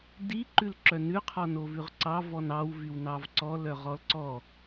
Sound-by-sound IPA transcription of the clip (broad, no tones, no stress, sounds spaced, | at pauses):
d i ǃ ʉ l ǁ œ n ʉ qʰ ɔ n o v ʉ ʁ ǀ ɑ v ɔ n ɑ w v y w n ɑ v ǀ ɔ l œ ʁ ɔ l ǀ ɔ